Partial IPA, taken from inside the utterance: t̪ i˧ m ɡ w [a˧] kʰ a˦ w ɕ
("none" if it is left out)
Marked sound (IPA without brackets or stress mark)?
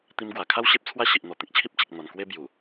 a˨˩